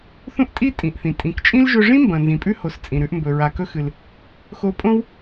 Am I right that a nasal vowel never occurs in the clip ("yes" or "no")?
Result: no